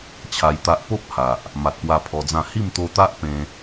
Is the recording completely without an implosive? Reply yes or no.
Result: yes